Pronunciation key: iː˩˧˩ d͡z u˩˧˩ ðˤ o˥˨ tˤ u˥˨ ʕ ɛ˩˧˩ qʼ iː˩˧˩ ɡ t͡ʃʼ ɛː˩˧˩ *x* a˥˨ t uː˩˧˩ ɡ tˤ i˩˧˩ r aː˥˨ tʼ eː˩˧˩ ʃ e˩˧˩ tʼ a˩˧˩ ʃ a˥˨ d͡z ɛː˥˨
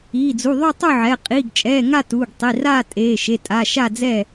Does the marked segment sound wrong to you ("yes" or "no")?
yes